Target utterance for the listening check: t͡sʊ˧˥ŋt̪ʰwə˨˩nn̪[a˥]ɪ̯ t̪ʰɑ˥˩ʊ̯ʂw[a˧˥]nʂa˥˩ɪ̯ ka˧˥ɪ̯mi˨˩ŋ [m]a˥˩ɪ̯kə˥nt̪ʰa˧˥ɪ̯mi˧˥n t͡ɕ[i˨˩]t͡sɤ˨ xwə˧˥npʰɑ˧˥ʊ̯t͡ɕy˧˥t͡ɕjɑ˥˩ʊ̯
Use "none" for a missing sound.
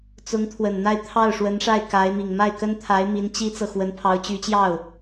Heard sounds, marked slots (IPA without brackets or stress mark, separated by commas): a˥˧, ə˧˥, m, i˥